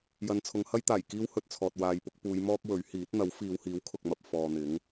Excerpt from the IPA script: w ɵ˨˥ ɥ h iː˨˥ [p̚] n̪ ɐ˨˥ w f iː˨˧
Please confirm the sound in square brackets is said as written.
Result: no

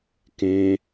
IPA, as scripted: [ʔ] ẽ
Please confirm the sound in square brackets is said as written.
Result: no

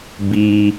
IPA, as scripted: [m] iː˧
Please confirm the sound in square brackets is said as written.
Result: no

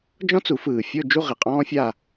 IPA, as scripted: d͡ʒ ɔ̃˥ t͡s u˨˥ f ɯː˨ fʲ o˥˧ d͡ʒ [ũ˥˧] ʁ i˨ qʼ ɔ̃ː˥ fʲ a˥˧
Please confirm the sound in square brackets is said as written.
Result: no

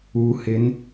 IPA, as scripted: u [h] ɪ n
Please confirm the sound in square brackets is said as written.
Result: yes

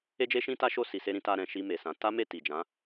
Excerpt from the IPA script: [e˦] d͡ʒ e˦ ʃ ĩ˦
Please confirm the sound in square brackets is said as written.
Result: yes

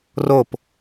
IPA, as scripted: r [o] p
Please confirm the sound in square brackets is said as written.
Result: yes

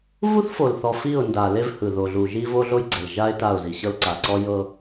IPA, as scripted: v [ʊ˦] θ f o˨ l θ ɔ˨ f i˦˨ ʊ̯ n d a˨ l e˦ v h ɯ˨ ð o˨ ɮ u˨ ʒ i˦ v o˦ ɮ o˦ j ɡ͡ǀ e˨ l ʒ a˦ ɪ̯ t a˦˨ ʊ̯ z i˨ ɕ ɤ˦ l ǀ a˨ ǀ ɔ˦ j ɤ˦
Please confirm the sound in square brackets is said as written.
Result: no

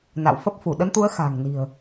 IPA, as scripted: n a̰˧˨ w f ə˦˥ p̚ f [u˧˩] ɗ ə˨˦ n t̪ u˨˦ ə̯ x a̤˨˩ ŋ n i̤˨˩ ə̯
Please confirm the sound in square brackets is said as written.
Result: yes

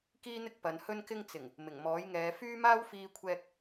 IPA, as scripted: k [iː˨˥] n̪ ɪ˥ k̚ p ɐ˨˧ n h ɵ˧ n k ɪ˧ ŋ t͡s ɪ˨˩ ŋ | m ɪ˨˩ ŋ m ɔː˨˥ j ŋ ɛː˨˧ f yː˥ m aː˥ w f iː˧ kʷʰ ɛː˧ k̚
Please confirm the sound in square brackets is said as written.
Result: no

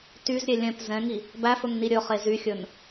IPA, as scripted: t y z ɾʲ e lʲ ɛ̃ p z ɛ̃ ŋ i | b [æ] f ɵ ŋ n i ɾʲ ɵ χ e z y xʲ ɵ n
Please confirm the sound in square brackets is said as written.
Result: yes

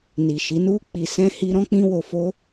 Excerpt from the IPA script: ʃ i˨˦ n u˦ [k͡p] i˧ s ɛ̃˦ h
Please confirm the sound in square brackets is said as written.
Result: yes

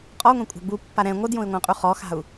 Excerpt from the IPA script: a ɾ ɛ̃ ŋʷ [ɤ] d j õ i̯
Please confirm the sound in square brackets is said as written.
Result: yes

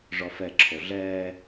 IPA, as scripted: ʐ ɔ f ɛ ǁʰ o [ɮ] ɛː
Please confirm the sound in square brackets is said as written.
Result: yes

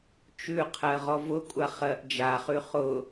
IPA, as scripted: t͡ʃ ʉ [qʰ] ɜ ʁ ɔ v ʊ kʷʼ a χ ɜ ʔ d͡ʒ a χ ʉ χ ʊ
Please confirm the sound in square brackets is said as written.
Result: yes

